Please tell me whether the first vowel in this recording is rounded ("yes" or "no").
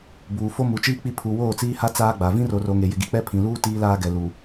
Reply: yes